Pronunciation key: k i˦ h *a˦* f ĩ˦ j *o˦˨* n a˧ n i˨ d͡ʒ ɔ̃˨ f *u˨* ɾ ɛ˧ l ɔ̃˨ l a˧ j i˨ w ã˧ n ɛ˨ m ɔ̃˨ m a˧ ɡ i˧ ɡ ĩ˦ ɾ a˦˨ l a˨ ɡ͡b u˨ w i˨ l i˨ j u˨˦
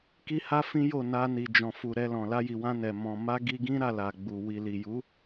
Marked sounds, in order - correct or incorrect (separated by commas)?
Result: correct, correct, correct